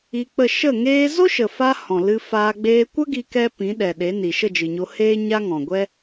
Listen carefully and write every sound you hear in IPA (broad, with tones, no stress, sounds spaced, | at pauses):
i˧ k͡p ə˦˨ ʃ ə˦˨ ŋ eː˧ z o˦ ʃ ə˨ f a˧ h ɔ̃˨ l ɨ˧ f aː˧ ɡ͡b eː˧ kʷ ə˦ ɡ i˦ k ɛ˦ p ĩ˨˦ ɗ ɛ˨ ɗ e˨˦ n i˨ ʃ ə˦˨ d͡ʒ ɨ˨ ɲ o˧ h eː˦ ɲ a˦ ŋ ɔ̃˨ ɡʷ ɛ˦